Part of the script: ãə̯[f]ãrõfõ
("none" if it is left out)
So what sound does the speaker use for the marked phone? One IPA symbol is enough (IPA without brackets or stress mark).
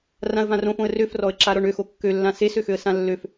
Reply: v